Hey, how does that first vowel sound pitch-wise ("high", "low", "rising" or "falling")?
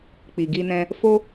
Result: low